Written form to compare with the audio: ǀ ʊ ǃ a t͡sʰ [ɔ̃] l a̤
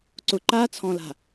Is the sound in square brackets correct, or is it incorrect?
correct